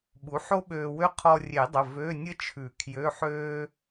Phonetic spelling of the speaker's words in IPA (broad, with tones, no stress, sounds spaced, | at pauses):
ɓ u˩˥ ħ o˥ ɓ øː˧ w ø˥ qʰ ɔ˧ rʲ e˨˩˦ dˤ ə˩˧˩ v ø˧˥˧ nʲ ə˥ t͡ʃʰ ʉ˨˩˦ kʰ j ø˧˥˧ ħ øː˥